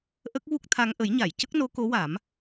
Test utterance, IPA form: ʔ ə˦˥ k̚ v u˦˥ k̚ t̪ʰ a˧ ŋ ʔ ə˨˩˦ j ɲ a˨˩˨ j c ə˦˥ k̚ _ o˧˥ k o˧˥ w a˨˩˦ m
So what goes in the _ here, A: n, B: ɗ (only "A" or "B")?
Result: A